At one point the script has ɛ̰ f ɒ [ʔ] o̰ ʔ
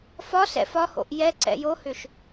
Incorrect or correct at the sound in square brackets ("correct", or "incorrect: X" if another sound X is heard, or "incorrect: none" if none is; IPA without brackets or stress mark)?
incorrect: h